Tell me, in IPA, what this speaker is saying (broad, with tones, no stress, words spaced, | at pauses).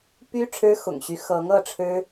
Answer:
py˥ ʈ͡ʂʰɻ̩˥xʊ̰˨˩ŋɕy˧˥ xɤ˧˥ŋ ɤ˥˩ʈ͡ʂʰɻ̩˥